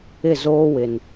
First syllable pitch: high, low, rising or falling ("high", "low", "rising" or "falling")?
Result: falling